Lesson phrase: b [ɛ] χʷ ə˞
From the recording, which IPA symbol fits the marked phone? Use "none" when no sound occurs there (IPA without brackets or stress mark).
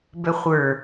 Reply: ɛ